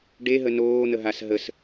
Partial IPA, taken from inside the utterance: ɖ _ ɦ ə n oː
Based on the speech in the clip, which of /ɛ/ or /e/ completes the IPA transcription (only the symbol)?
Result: e